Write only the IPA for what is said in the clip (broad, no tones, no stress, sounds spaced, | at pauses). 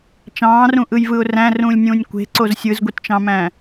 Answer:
t͡ʃ ɑ̃ː r ũ ʔ ɯ j v ɯ ʊ̯ r æ̃ r ũː lʲ nʲ ũː nʲ kʷ e̤ ǀ o z sʲ ɯ z ɡʷ i t t͡ʃ ɑ̃ m æ̃